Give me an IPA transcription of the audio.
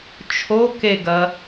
t͡ʃʰ o k e ɡ ɐ

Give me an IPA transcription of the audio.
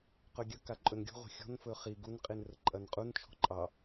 q ɵ ɡʲ ə k a ǃʼ ɵ n ɡʲ ṳ ʁʷ ə̤ xʲ ɔ̤ n f ɵ χ i ɡ u n qʼ i n r ə ǃʼ ɐ n qʼ u n t͡ʃʰ ɔ̤ ǃʼ ɑ

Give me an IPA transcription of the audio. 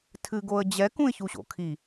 tʰ ɨ ɡ o ə̯ d͡ʑ ɛ k ũ ɪ̯ ç u ɕ o̰ kʰ i

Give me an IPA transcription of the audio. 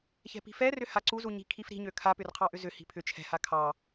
ç ɛ̤ p i̤ f ɛ r ʏ h a ǀ u z u ɲ i̤ kʰ i f ɾ i̤ ɲ ø kʰ a p ʏ r qʰ ɑ ʔ ʏ z ʏ h i̤ pʰ ʏ t͡ʃʰ ɛ̤ h a kʰ ɑ

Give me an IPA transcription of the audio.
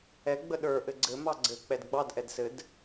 ɛ ɡ͡b ə ɗ ə˞ ʔ ɘ ɡ͡ǀ ɘ m ɑ ɡ͡ǀ ɘ k͡p ɛ d ɡ͡b ɑ d ʔ ɛ d s ɘ d

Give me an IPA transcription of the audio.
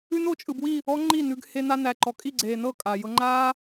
ʉ˦ n o˨˦ t͡ʃʼ ɯ˨ b w i˦˨ | ɔ˦ ŋ͡ǃ i˦˨ n ʉ˧ ɡ h e˦ n a˦ n æ˨ ǃ ɔ˨ kʼ i˦˨ ɡ͡ǀ eː˨ n ɤ˦˨ kʼ a˨ j ɤ˦ ŋ͡ǃ aː˦

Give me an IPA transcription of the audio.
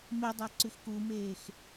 m e dˤ a ǀ ʉ x k u m eː x

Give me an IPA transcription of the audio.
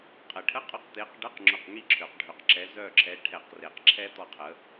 qʼ ə˨˩˦ ʈʰ ə˧˥˧ qʼ ʊ˧˥˧ q t̪ e˨˦ q ɖ ə˧˥˧ q ŋ͡ǁ ʊ˦˨ q ŋ i˥ ǁʰ ø˨˩˦ q ɖʱ ø˨ q ǁ ɛ˨˦ z œ˦˨ ǁʰ ɛ˨˦ ʈʰ ɛ˨˩˦ q r e˨˩˦ q ǁʰ ɛ˥ t̪ ɔ˦˨ qʰ ə˨˦

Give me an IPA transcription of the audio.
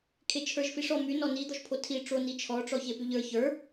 kʰ e t͡ʃʰ ə˞ ʒ f i ʂ ɔ m y n ɔ n i d̪ ɔ ʒ pʰ o tʰ i ʈ͡ʂ o n i t͡ʃʰ ɔ ʈ͡ʂ ɔ ç e p y ʎ ə˞ ç ə˞

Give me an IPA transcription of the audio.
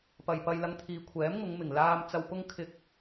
p ɐ˨ j p ɐ˧ j l ɐ˧ ŋ t̪ʰ iː˨˧ kʷʰ ɛː˨˥ m ŋ ʊ˨˧ ŋ m ɪ˨˩ ŋ l aː˧ m t͡s ɐ˨ w p ʊ˧ ŋ kʰ ɪ˨ k̚

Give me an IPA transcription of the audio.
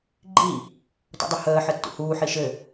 ɡ͡ǃ i | t ɔ̰ dˤ ɘ h əː ħ ɘ tː ṵ h uː ħ i ʃ ɘ

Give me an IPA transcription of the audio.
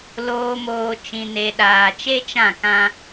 l oː˨ m oː˨ t͡ʃ ĩ˨ n e˨ ɗ aː˨ t͡ʃ e˦ t͡ʃ ã˦˨ k ã˦

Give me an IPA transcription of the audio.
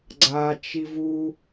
ɡ͡ǀ a t͡ʃ i v u

